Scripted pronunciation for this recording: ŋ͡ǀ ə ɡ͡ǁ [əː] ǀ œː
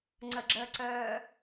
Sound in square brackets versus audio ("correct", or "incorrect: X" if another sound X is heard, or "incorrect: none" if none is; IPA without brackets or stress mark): correct